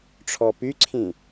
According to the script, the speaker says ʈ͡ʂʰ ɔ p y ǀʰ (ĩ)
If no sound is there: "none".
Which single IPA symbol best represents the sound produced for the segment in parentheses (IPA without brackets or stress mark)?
ĩ